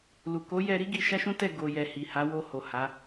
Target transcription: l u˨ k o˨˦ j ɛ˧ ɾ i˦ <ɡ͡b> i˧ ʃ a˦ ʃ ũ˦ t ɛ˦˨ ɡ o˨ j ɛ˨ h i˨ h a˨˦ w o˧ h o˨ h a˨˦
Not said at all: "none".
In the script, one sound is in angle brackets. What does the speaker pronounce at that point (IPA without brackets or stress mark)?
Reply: ɡ